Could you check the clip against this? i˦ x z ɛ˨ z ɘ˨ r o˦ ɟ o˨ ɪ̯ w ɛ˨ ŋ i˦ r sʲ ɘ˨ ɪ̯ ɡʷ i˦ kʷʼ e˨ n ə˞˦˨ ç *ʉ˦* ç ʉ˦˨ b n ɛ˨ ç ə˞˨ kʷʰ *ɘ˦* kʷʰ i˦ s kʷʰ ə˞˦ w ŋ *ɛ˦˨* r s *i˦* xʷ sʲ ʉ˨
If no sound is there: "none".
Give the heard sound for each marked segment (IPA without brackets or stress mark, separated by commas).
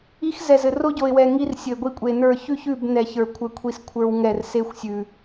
ʉ˦, ɘ˦, ɛ˦˨, e˦